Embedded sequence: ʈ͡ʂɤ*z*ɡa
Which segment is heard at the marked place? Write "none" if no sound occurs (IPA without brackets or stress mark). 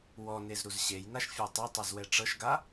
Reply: ʃ